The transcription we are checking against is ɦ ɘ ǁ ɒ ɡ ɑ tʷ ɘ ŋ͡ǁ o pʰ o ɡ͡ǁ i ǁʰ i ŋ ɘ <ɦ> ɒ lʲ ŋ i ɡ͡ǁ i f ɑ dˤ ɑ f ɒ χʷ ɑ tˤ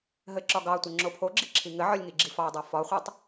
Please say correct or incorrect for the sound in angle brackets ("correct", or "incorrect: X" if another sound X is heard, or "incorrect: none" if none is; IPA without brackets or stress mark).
incorrect: ʕ